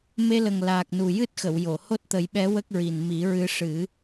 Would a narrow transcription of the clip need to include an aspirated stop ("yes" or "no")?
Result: no